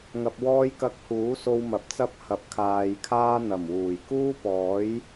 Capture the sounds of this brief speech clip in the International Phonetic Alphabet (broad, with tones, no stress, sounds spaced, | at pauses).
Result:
ŋ ɐ˧ p̚ w ɔː˥ j k ɐ˧ k̚ h uː˨˥ s o˧ w m ɐ˨˥ p̚ t͡s ɐ˥ p̚ h ɐ˨ p̚ kʰ aː˨ j kʰ aː˥ n̪ ɐ˨˩ m w uː˨˩ j k uː˥ p ɔː˨˥ j